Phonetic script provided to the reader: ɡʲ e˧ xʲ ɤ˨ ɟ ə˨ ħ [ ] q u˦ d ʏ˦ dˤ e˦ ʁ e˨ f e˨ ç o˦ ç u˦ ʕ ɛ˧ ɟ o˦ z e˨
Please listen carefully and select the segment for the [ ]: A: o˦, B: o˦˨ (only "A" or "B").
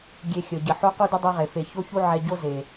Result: A